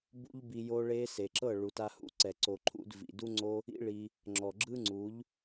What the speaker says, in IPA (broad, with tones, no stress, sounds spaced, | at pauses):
b ṵ˦ ʎ b i˧ j o˦ ɭ e˦ s e˨ ǁ ɤ˦˨ ɭ u˨ t a˧ h ṵ˦ ǀ ɛ˨ ǀ o˨ ǃʰ ṵ˧ d v ḭ˨ d u˦ ŋ͡ǀ o˦ | ḭ˦ ɭ i˧ | ŋ͡ǁ ɔ˨ ɡ͡ǁ ɯ˦ ŋ͡ǀ u˨˦ ʎ